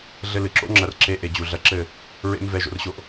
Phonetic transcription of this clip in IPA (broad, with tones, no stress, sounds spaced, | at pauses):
ɮ ɘ˧ l ɨ˨ ǁ o̰˦ ŋ͡ǁ ɐ˧ r ǁ e˧ ʔ e˨ d͡ʑ u˨ ɮ ɐ˧ ǁ ɘ˦˨ | ɹ ḛ˦ m v ɛ˧ ʒ o̰˧ r ɕ o˦ ʔ